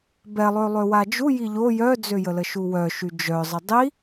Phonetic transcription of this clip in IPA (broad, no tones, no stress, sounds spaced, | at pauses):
b ɛ lˠ ø lˠ ø w a d͡ʒ u j i ʎ o j œ d͡z ø j ə l ə ʃ u w œ ʃ y d͡ʒ œ zˤ ə dˤ i